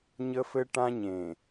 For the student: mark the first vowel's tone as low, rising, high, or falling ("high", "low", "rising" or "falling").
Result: high